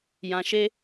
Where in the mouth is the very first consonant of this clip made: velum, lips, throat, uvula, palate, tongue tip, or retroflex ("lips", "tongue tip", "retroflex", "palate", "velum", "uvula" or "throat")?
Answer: palate